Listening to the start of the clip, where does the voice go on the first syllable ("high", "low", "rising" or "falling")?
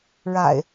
low